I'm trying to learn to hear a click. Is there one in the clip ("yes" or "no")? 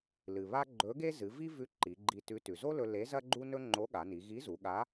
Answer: yes